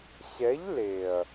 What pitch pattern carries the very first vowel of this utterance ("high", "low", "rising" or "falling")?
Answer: rising